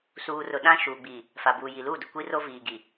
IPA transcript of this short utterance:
suː˨rʊ˨ɗã˦ ʃuː˨ɡ͡bi˨ | fa˨buː˨ ji˨luː˦˨dʊ˨ kʷi˦ro˦viː˨ɡi˨

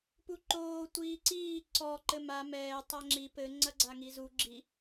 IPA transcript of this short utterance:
puǃoː tʷiːǀiː ǀɔ ǃɘma mɛː tˤaŋ͡ǁi pɘ ŋ͡ǀɐɡ͡ǀaŋizu ɡ͡ǁi

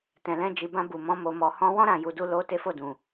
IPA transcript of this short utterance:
tɛ̃˨lɛ̃˧ d͡ʒi˨bã˧ bu˨mɔ̃˧ mo˨mɔ˨ hɔ̃˧ wɔ̃˦ ɾã˦˨ju˨˦du˦ lo˦ te˦fo˦˨dũ˨

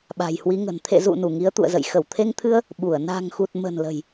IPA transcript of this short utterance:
ɓa̤˨˩jhwi˨˦ŋə̤˨˩n t̪ʰḛ˧˨zṵ˧˨ nu˧˩ŋi˨˦ə̯t̪ṵ˧˨ə̯zə̰˧˨j xə˧˩wt̪ʰe˧ŋt̪ʰɨ˧ə̯ | ɓu˧˩ə̯ na̤˨˩ŋxu˨˩t̚ mə̤˨˩n lə̤˨˩j

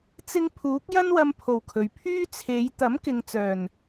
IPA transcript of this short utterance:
t͡sɪ˧ŋ pʰuː˨˥k̚jɐ˥nwɐ˧mpʰo˨˩w kʰɵ˨ɥpʰyː˥ t͡sʰe˨˧j t̪ɐ˨˥mkɪ˨ŋ t͡sœː˨˩n

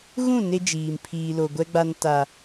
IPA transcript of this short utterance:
ɣũ˦˨ ne˦d͡ʒiː˨m pʰiː˨ lo˨ɡʷɛ˦ɡ͡ba˦n ta˦

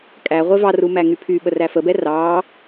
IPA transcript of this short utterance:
kʼæ ʁʷevɑru mæŋypʰyɓə ræfəbɛ rɑ

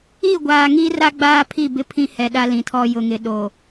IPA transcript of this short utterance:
i˦˨ ɡʷaː˨ŋi˦ra˦ ɡ͡baː˦pʰi˦˨ bɪ˦ pʰĩ˦hɛ˨ɗa˦ lĩ˨tʰɔ˦ jʊ˨ŋɪ˨ɗo˨

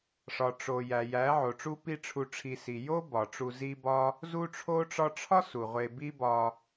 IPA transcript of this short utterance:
ʂɒ˨ʈ͡ʂo˨ jæ˨jæ˨˦ʕo˨ʈ͡ʂu˦ pi˦ʈ͡ʂʰu˧ʈ͡ʂʰi˧ si˨jo˦ bɒ˨ʈ͡ʂu˧zi˦bɒ˦ | zu˧ʈ͡ʂʰo˧ʈ͡ʂɒ˧ʈ͡ʂʰɒ˦ su˨ʁʷe˧ bi˦bɒ˧

